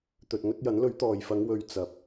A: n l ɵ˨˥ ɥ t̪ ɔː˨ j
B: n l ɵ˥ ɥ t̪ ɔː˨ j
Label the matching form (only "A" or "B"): A